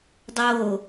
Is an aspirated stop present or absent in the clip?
absent